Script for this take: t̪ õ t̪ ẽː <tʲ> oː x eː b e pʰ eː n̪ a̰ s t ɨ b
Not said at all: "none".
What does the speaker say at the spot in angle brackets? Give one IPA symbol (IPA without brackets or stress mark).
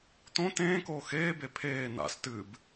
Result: k